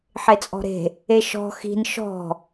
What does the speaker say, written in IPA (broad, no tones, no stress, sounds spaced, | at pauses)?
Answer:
ħ e t͡sʼ ɔ̤ ɾ e̤ | e ʃ ɔ̤ x i̤ n ʃ ɔ̤